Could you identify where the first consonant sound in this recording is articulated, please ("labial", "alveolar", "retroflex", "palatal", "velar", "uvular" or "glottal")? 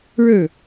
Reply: retroflex